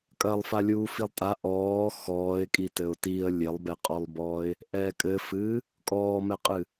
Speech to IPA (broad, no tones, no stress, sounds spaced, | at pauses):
kʼ ɐ lˠ f a lʲ uː f i lˠ tʼ a ʔ ɔː x ɔː ɪ̯ kʼ i t ɘ ʊ̯ t i ə̯ lʲ e lˠ b ɛ qʼ ɔ lˠ b ɔː ɪ̯ | ʔ ɛː kʼ ɘ f ɨː | kʼ ɔː m ɛ qʼ ɨ